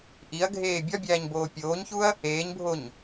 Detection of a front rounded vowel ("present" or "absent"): absent